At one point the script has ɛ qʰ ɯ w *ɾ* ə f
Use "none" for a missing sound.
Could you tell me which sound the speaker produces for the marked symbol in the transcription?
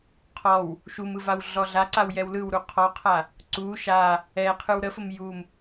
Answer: ɾ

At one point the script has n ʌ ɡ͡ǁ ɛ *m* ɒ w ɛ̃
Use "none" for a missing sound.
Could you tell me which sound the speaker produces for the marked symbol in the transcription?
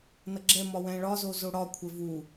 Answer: m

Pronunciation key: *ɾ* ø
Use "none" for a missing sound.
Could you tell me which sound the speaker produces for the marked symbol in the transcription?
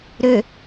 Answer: ɾ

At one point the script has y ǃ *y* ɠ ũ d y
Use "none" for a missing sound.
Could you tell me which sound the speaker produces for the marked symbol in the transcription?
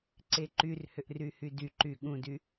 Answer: y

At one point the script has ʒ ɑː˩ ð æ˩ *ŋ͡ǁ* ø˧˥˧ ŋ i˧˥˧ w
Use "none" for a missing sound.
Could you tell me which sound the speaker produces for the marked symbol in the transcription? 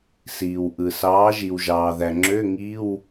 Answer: ŋ͡ǁ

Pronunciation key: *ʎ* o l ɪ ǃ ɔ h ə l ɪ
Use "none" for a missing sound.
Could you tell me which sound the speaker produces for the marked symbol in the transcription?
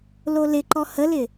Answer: l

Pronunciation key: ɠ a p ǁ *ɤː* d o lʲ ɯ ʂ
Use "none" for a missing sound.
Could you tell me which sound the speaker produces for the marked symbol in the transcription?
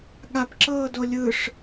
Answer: ɤː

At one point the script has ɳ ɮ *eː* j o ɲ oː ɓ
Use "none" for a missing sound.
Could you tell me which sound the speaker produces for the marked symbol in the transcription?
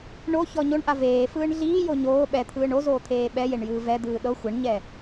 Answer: iː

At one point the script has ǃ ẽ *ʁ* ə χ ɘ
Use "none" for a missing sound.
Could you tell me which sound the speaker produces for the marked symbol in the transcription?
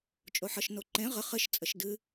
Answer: ʁ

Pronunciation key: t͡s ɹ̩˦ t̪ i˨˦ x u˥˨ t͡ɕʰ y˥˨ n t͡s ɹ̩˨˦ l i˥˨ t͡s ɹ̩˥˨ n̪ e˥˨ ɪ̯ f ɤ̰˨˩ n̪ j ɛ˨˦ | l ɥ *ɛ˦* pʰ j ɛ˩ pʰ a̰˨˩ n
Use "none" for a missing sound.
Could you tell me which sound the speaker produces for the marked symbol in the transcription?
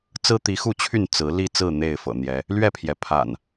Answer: ɛ˥˨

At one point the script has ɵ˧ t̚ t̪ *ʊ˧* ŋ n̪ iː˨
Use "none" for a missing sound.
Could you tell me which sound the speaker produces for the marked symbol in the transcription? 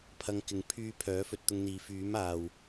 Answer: ʊ˧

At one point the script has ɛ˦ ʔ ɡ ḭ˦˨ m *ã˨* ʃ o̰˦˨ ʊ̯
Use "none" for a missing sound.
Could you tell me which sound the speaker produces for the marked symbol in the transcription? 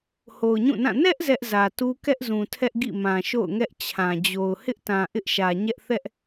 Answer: ã˨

